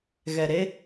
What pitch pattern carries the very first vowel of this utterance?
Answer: low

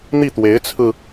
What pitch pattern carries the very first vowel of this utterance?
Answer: falling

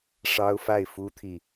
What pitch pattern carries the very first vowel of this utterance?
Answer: high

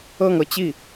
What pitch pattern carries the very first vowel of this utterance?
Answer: falling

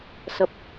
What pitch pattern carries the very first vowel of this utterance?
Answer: low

